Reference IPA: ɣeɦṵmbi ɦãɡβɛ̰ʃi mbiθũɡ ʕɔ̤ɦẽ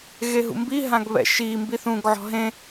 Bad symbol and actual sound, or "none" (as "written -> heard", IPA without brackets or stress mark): none